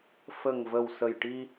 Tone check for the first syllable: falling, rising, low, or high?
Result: low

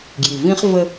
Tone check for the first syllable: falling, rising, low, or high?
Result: low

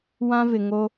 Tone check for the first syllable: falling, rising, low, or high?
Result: high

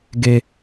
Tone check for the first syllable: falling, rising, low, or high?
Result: high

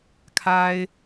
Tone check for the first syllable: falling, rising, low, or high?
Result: high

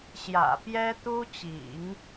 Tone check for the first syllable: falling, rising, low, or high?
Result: low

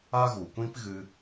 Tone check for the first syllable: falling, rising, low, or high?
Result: high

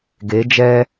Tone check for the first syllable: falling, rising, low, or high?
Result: rising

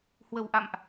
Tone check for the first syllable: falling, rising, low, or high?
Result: low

